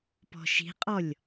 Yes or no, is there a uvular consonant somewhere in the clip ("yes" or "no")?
yes